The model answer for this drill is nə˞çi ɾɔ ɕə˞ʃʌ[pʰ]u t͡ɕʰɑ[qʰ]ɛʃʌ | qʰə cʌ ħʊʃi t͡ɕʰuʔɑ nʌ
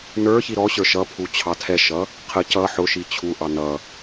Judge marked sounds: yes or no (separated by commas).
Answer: yes, no